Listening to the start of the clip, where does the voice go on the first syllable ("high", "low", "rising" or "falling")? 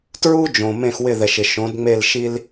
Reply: high